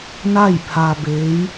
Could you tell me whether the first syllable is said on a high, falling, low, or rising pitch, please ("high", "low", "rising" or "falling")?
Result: falling